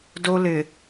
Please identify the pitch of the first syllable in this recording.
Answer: high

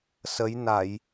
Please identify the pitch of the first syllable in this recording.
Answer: rising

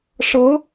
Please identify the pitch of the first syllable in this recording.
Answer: rising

